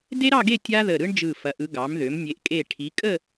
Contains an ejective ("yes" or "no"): yes